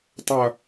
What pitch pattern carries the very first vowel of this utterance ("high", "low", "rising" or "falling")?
low